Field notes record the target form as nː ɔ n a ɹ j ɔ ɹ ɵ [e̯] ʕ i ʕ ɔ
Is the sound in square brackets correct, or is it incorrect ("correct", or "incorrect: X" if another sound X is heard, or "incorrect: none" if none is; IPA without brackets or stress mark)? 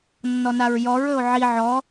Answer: incorrect: o̯